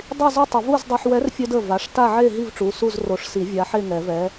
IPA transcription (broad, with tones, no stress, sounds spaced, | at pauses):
dˤ i˥˨ z y˥˨ tˤ ə˨˩˦ v u˥˨ z dˤ œ˧ ħ w ɛ˨˥ r fʲ œ˧ d ə˩˧˩ v a˩˧˩ ʂ t a˥˨ ʕ e˥˨ ɦ i˥˨ v ʈ͡ʂ u˩˧˩ s u˥˨ z r o˨˩˦ ʂ s i˨˩˦ vʲ a˨˥ ħ e˥˨ ŋ ɛ˨˩˦ v ɛ˨˥